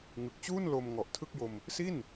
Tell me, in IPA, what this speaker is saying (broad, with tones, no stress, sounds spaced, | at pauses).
ŋ ɯ˨˩ k̚ t͡ɕ uː˥˩ n l o˧ m ŋ ɔ˨˩ ʔ tʰ ɯ˥˩ k̚ j o˧ m | s i˥˩ n